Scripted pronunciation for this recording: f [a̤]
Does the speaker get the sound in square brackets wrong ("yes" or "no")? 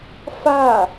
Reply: yes